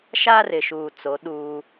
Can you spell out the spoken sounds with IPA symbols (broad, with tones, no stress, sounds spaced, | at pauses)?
ʃ aː˦ r ɪ˨ ʃ uː˨ t͡s o˨˦ ɗ uː˦